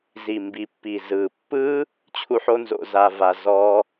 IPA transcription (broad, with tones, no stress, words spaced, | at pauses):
zi˨mbi˨pːi˨ zɯ˨pːɯ˦ | t͡ɕʰu˦ħo˦nzo̰˧ za˧va˧ zɔ˦